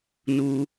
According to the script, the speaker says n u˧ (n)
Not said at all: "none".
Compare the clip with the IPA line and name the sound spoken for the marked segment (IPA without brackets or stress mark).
none